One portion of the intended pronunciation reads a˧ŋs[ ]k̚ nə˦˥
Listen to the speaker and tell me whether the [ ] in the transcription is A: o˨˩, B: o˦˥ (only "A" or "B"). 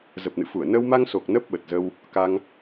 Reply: A